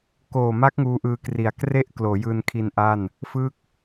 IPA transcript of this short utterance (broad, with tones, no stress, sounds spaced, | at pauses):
k oː˨˩ m a˦˥ k̚ ŋ uː˦˥ ʔ ɯː˧ k r i˨˩ a̯ k r e˥˩ ʔ k l oː˩˦ j ɯː˧ n kʰ i˧ n ʔ a˥˩ n | f ɯ˥˩ k̚